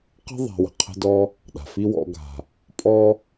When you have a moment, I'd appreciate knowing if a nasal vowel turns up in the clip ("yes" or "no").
no